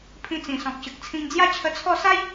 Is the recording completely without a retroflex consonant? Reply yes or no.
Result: yes